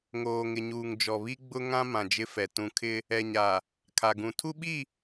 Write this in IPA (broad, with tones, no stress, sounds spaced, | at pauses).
ŋ oː˨ ŋ ɪ˨ ɲ uː˨ ŋ d͡ʒ ɔ˨ β i˦ ɡ͡b ʊ˦ ŋ ã˦ m ã˨ d͡ʒ ɪ˦ f ɛ˨ t ũ˨ kʰ ɪ˦ | ɛ˨ ɲ a˨ | kʰ a˨ ɡ ũ˨ tʰ u˦ ɓ i˦˨